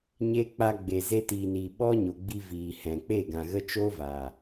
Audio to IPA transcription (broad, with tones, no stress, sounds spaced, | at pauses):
ɲ e˦ k͡p a˧ ɡ͡b e˨ z e˧ t iː˨ n iː˨ ɓ ɔ˦ ɲ o˨ ɡ͡b i˧ v iː˨ h ɛ̃˨ k͡p e˦˨ ɡ ã˨ ɣ ə˦ t͡ʃ oː˦ v a˨